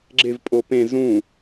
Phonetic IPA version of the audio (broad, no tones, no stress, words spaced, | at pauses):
ɡ͡ǁevpʼo pẽ zũ